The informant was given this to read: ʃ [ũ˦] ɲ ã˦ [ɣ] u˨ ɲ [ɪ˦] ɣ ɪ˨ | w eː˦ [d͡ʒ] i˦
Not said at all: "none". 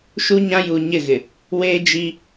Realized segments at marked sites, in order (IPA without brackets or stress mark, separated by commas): u˦, j, ɪ˦˨, d͡ʒ